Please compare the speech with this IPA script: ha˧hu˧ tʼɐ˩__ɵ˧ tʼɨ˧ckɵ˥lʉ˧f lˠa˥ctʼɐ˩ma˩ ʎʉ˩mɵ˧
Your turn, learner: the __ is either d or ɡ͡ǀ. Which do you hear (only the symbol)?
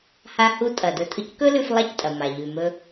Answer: d